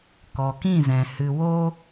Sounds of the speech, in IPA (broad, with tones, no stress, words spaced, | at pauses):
kɔ˨kĩ˦˨zɛ̃˨ hɨ˨wo˦